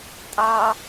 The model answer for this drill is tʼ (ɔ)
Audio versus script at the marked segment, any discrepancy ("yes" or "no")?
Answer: yes